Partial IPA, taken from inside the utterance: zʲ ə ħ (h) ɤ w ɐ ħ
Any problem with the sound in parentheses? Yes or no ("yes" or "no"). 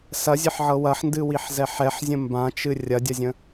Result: yes